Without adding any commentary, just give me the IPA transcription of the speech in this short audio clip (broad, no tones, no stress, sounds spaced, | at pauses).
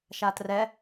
ʃ a t r ɛ